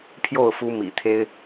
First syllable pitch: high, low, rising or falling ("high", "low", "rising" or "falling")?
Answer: falling